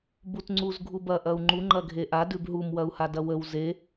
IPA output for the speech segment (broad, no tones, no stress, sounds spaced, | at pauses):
b u t ŋ͡ǀ u z ɡʱ u b ɐ ʔ ɐ u̯ ŋ͡ǃ u ŋ͡ǃ ɐ ɡʱ e ʔ a d ʉ b ɦ u m w ɐ u̯ h a d ɐ w ə w z e